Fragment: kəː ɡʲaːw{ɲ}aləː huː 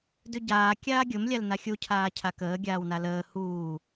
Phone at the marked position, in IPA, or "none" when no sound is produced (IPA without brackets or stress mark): n